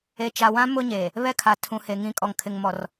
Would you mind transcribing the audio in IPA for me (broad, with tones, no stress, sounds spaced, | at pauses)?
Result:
e˨ t͡ʃ a˨ w ã˦ m ʊ˦ ɲ eː˨ | β ɛ˦ kʰ a˨ tʰ ũ˨ h e˨ ŋ ĩ˨ kʼ ɔ˨ ŋ kʰ ɪ˨ ŋ m ɔ˨ r